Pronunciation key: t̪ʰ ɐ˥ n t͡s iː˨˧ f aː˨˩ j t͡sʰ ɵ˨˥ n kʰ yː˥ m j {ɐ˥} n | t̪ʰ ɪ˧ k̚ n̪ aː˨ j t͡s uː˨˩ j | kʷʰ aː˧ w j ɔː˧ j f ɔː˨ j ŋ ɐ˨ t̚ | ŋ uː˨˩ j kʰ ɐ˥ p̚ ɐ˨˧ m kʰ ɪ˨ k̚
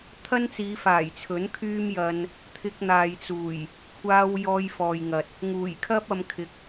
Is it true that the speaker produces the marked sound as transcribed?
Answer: no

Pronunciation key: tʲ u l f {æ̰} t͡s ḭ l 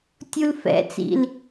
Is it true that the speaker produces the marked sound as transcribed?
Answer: no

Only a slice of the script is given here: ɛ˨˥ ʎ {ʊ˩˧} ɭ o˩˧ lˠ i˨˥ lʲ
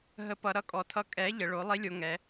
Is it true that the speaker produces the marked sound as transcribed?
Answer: no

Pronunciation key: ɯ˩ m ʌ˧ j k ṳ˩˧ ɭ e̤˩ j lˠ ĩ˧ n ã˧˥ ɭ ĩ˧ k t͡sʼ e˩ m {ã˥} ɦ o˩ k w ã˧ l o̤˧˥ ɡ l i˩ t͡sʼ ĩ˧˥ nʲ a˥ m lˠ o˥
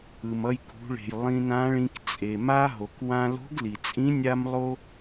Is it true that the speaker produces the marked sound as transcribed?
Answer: no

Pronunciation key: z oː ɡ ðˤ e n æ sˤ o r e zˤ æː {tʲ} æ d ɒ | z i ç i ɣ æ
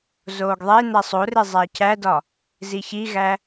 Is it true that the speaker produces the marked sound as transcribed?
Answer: no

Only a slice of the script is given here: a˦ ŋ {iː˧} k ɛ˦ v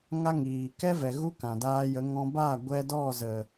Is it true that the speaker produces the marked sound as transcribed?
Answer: no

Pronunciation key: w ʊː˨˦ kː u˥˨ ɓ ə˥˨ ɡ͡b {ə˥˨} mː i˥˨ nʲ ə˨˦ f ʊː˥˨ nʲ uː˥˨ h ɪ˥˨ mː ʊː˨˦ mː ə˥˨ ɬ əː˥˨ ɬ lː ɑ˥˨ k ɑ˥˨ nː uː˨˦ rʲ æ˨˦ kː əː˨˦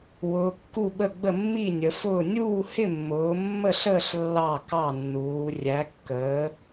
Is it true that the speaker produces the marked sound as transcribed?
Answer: yes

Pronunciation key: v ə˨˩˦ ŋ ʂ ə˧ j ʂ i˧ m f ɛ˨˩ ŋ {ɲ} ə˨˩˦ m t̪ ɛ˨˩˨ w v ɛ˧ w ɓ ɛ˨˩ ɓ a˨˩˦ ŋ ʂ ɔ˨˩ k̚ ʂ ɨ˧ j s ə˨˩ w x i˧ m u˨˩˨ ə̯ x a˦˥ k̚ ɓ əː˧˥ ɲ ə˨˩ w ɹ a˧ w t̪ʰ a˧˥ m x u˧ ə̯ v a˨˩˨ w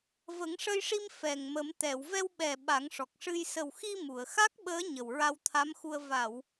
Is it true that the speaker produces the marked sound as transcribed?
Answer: no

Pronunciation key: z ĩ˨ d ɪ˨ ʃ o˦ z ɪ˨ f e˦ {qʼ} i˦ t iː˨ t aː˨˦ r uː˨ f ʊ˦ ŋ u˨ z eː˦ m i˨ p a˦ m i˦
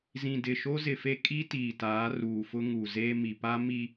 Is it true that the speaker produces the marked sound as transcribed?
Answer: no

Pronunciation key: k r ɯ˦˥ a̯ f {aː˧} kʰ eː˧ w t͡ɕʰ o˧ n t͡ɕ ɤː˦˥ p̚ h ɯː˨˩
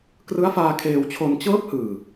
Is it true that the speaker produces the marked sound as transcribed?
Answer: yes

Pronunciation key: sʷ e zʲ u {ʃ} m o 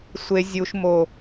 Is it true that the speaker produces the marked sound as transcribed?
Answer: yes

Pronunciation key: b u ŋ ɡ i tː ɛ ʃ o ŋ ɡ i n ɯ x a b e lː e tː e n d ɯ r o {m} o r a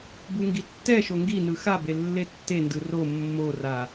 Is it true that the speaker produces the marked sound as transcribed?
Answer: no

